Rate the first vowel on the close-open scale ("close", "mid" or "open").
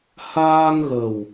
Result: open